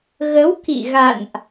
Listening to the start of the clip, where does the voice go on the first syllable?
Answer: rising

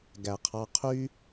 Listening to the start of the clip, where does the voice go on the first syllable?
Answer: low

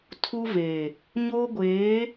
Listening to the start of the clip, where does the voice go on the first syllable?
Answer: high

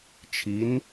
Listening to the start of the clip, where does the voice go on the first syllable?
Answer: rising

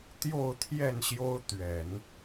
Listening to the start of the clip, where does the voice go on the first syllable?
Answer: falling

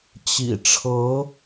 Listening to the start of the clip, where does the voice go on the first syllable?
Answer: low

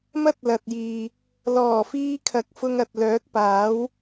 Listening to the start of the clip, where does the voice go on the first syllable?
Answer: high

